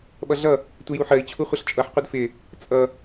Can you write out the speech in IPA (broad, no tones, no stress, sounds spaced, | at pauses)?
ɓ ʌ ɮ ʌ | tʷ ɪ j u ħ ɜ i̯ t͡ɕʰ u χʷ ʌ ɬ t͡ʃʼ ʌ ħ qʷ ɪ d f ɪ | t͡sʼ ʌ